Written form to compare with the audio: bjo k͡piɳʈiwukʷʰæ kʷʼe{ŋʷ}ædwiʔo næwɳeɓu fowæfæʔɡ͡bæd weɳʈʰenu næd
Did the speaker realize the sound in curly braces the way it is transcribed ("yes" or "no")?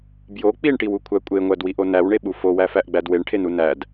yes